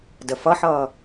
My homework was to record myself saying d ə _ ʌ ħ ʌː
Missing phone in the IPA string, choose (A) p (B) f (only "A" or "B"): B